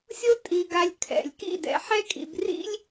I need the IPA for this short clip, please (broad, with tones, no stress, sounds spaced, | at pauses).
sʲ o˦ tʼ i˧ ɡ a˧ lʲ kʰ ɛ̰˨ lʲ k ḭ˦˨ d ɛ̰˧ ħ ɛ˦ kʼ ḭ˧ b r ḭ˦ lʲ